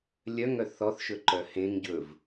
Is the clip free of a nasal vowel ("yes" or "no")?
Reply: no